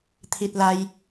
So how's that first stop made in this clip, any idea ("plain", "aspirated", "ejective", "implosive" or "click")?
aspirated